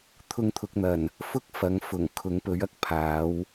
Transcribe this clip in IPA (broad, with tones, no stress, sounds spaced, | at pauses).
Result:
t̪ʰ ʊ˧ ŋ t̪ʰ ʊ˨ k̚ n̪ ɐ˨˩ n | f ʊ˥ k̚ f ɐ˨˥ ŋ f ʊ˨˩ ŋ kʰ ʊ˨˥ ŋ p ɵ˨˥ ɥ ɐ˧ k̚ pʰ aː˨˥ w